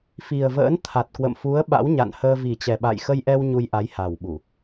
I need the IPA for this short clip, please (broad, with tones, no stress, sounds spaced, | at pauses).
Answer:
f i˨˩ ə̯ v ə̰ː˧˥ n t̪ʰ a˨˩ t̚ k w ə̰˧˨ m f u˨˦ ə̯ ɓ a̰˧˥ w ɲ a̰˧˨ n h əː˧ v i˨˩ t͡ɕ ɛ˨˩ ɓ a̰˧˨ j x ə˧ j ʔ ɛ˧ w ɲ u˧ j ʔ a˨˦ j h a˨˩ w ɓ u˧˩˨